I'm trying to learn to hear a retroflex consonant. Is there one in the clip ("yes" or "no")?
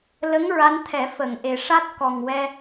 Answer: yes